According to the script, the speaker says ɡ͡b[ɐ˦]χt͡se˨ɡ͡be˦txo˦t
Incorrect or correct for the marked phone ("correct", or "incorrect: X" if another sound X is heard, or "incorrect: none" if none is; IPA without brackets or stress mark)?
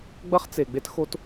correct